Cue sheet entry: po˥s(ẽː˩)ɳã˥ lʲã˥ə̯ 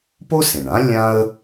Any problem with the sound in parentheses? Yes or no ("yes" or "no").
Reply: yes